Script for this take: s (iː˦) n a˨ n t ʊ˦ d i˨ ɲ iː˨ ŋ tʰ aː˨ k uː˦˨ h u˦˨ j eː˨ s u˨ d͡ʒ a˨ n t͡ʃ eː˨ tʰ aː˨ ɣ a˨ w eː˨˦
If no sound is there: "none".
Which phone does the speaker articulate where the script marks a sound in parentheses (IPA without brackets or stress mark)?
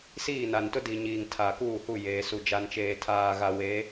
iː˦˨